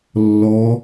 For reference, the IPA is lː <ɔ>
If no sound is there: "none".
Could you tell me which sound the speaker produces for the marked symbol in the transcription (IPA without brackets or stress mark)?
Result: ɔ